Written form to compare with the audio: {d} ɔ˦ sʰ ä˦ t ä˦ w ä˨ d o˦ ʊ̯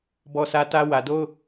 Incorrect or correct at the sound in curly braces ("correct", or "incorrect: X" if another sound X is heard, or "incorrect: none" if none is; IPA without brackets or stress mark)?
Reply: incorrect: b